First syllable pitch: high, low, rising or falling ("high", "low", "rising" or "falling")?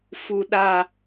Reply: low